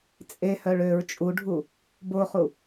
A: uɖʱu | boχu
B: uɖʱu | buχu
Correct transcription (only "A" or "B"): A